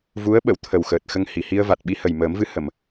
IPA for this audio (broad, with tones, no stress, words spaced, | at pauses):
vu˧˥ə̯ɓə˨˩˨wt̪ʰə˨˩w xəː˨˩t̚ xə˧ŋhi˨˩˨hi˧ə̯va˨˩t̚ ɓi˧hə˨˩jməː˨˩˦mvɨ˧˥ hə˨˩˨m